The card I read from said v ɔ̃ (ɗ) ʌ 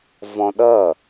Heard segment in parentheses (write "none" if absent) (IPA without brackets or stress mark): ɗ